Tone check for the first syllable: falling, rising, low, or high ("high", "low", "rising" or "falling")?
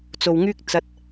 low